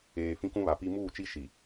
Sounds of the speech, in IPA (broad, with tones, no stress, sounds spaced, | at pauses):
eː˨ f ĩ˦ k ũ˦ β a˨ p i˦ m uː˦˨ t͡ʃ i˦ ʃ i˨